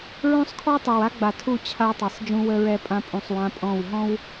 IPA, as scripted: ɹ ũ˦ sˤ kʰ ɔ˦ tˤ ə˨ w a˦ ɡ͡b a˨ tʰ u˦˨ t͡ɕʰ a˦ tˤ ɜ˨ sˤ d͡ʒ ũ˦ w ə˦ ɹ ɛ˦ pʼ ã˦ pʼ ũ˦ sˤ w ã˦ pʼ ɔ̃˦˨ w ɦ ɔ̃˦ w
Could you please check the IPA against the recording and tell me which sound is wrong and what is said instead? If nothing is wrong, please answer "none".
none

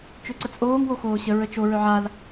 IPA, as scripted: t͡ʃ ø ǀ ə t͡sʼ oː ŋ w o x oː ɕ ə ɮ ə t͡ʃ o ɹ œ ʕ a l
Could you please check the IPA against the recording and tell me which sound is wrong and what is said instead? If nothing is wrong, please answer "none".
ɮ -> ɹ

